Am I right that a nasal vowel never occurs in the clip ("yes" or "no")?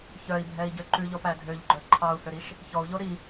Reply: yes